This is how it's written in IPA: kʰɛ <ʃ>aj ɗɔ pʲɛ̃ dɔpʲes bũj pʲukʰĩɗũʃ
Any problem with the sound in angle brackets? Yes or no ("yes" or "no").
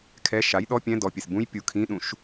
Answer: no